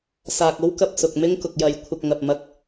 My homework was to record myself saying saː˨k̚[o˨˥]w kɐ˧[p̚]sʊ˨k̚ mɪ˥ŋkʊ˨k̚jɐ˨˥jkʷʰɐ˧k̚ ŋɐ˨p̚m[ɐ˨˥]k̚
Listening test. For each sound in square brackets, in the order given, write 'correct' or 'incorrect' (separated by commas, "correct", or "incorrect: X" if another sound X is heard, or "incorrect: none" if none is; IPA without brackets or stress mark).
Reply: incorrect: o˥, correct, incorrect: ɐ˧